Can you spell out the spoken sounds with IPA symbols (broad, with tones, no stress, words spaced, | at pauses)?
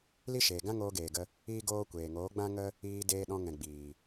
li˦ʃeː˨ ɡã˦ŋoː˧ɡeː˨ɡə˧ | iː˦ɡoː˦ kʷeː˨ŋoː˨˦ɡ͡bã˦ŋə˦ | iː˧deː˧ɗɔ̃˧ ŋɛ̃˨ ɡ͡biː˨